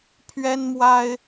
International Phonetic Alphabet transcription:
pʰ ɥ ɛ˦ n m w a˦ ɪ̯

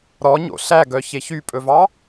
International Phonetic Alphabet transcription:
ɾ ɔ ɲ o̰ ɬ æ ɡ œ ç e ç y pʼ ɵ v ɑ

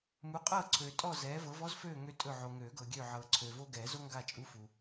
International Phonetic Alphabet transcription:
m u˨˦ qʼ ɤː˦˨ ǀʰ øː˨ tʼ ɔ˦˨ z ɛː˨˦ v ɤ˨˦ v ɔ˦ z f øː˦˨ ŋ ø˦ tʼ ɵ˦˨ ʕ o˨ ŋ øː˨˩˦ ɡ ɤ˨ ɡʲ øː˦˨ ʕ ɤː˨ ǀʰ øː˨ v o˦ ɡ ɛː˨˩˦ z o˦ ŋ ɡ a˦˨ t͡ʃʼ u˦ f u˨

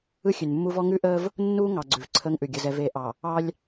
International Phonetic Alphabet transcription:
ɯ˦ xʲ ʉ˨ n mː u˦ v ɔ˦ ŋ ʉ˦ ʔ əː˦ v | nː uː˦ ŋ ɑ˨ ɡ͡ǀ ʉ˨ v ǀʰ əː˦ ŋ ʔ ʉ˨ ɡʲ ə˨ z ɛ˨ v eː˨ ʔ ɑ˨ | ɑ˦ lʲ

